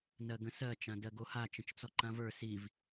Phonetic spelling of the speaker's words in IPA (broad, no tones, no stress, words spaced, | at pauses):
nɜɡə̃sɜ t͡ʃãdɜɡoha t͡ʃə̃t͡ʃt͡sɔǃãvə˞ siv